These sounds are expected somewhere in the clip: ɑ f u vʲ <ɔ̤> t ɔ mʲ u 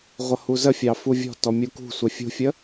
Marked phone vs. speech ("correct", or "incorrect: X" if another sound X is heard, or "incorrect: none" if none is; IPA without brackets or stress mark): correct